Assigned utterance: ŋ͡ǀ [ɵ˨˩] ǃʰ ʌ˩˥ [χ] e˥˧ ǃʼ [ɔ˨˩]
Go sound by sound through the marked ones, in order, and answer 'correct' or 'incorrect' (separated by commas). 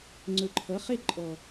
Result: correct, correct, correct